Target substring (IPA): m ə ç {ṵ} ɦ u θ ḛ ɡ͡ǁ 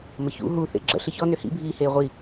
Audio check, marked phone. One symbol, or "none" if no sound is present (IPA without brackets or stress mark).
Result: ṵ